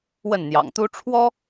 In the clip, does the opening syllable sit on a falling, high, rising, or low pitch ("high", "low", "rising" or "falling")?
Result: falling